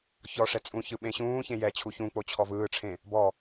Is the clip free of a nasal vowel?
no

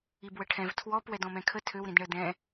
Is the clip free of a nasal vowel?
no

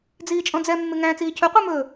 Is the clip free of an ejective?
no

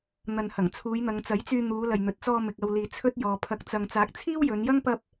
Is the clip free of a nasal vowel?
yes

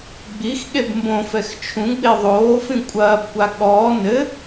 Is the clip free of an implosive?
no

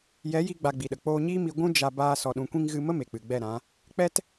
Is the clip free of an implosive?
no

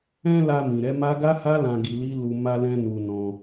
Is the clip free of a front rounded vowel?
yes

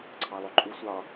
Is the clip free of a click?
no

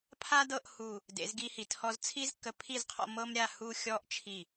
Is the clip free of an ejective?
yes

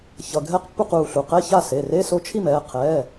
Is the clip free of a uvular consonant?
no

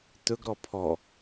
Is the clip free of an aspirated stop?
no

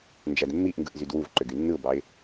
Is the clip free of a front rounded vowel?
no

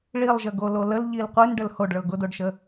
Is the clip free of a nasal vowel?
yes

